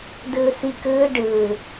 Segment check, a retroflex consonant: present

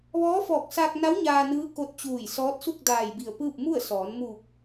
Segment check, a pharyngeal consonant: absent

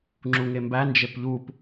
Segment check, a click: present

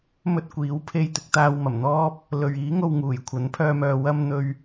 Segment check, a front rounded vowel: present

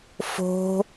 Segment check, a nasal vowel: absent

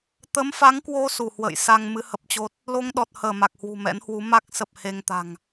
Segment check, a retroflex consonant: absent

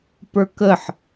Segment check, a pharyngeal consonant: present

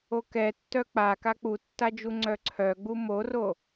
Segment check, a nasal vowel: absent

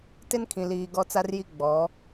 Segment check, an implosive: absent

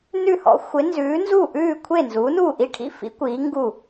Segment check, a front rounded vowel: absent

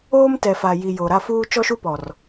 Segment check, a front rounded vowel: absent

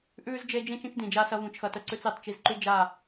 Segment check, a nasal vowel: present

